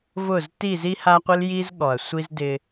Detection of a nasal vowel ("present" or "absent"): absent